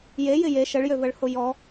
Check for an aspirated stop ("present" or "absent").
absent